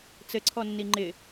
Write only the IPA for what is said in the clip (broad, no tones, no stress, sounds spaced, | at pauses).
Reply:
t͡s ɘ ǀʰ ɔ nː i ŋ͡ǃ ɪ